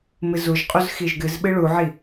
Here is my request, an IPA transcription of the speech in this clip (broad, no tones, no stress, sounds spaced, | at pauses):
m ɨ z u ʒ qʼ u z x i ʒ ɡ ɨ z ɓ ɨ ɭ u ʕ i